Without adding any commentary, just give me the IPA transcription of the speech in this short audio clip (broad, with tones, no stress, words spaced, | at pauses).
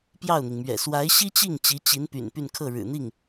pjɑ˥˩ʊ̯n̪i˩ŋmɥɛ̰˨˩ swa˧˥ɪ̯ɕi˥t͡ɕi˥˩ŋ t͡ɕi˧˥t͡ɕi˧˥npy̰˨˩n py˥˧nkʰɤ˥˩ɻɻ̩˨˩n̪i˥˩ŋ